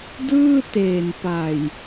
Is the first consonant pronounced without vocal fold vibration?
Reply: no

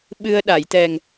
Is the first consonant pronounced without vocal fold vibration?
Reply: no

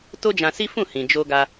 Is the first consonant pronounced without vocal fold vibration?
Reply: yes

